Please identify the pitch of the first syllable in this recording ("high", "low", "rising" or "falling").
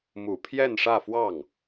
low